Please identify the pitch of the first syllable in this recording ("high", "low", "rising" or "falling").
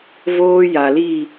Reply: high